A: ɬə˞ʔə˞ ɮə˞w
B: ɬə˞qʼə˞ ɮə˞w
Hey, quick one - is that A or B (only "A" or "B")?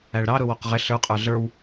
B